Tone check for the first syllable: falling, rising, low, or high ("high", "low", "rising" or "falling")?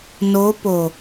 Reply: rising